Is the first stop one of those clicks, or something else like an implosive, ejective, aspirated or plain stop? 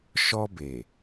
plain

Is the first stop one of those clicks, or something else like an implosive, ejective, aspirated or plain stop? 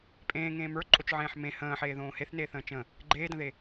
ejective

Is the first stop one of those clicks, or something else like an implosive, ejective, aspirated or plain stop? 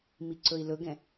click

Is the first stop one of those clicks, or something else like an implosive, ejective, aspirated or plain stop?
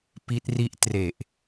plain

